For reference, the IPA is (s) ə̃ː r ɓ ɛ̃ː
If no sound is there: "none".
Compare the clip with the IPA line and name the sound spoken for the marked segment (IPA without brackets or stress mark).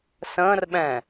s